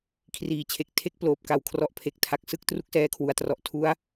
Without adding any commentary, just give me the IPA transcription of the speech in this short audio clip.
kʰ r iː˩˦ t͡ɕʰ e˨˩ k̚ tʰ e˦˥ k̚ p l oː˨˩ p̚ k a˨˩ w kʰ r ɔ˨˩ ʔ pʰ e˨˩ k̚ tʰ a˨˩ k̚ s ɯ˦˥ k̚ t r u˥˩ k̚ s ɛː˦˥ kʰ w u˩˦ a̯ t r ɔ˨˩ ʔ tʰ u˦˥ a̯

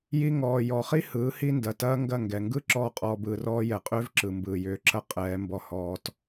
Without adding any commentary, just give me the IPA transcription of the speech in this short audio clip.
j i˧ ŋ ɔː˨ j ɔ˨ χ i˦ h ɯː˨˦ h i˦ n d ɐ˨ t ɐː˦ ŋ ɡ ɐ˦˨ ŋ ɡ ɛ˨ ŋ ɡ ɯ˦ ǁ ɔː˦ qʼ ɔː˧ b ɯː˧ r ɔː˦ j ɛ˨ qʼ ʏː˦ v ǁ ɯ˨ m b ɯː˨ j ʏː˨˦ ǁ ɐ˦ qʼ ɛː˨˦ m b ɔ˧ h ɔː˧ t

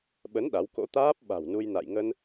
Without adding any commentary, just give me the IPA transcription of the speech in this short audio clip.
ɓ ə˨˦ n ɗ a˨˦ w k o̰˧˥ t̪ aː˦˥ p̚ ɓ a̤˨˩ w n u˧ j n a̰˧˨ j ŋ ə˧ n

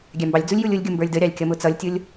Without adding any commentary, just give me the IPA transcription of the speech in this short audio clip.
ɡʲ æ m b ɑ lʲ d͡z u lʲ j u lʲ ʊ lʲ ɡʲ u m b ə˞ lʲ d ə ɾʲ ɑ lʲ kʲ ʌ m ʊ t͡s ʌ lʲ tʲ ʊ lʲ

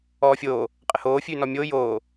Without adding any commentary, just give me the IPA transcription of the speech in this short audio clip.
ɔː fʲ oː | qʼ ə h oː fʲ ʉː n ɔ mʲ oː j oː

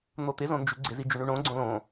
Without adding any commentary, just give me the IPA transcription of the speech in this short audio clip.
n̪ o t̪ ɪ z õ n d͡ʒ ʉ ɡ͡ǀ ɪ z i d͡ʒ ʉ ɳ ʉ ɳ õ ɡ͡ǀ õ l õ

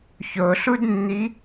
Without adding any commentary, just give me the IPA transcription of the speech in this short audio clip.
ç o ɬ u d nː i

